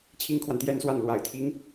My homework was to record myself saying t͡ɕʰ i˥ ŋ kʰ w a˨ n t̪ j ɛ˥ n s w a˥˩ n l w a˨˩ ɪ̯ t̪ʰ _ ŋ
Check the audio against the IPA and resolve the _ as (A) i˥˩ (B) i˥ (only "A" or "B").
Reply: B